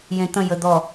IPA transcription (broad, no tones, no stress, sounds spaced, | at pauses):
j ẽ t̪ ə̃ j ə d̪ ɔ